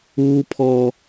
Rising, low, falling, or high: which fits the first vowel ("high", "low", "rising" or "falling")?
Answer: high